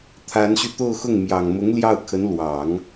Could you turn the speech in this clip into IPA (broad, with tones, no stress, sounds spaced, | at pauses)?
t̪ʰ a˧˥ n ɕ y˧ t̪ o˥˧ ʊ̯ x ʊ˥˩ ŋ m j ɑ˨˩ ŋ m ʊ˧˥ ŋ l j ɑ˥˩ ʊ̯ kʰ ə˧˥ n l w ɑ˨˩˦ ŋ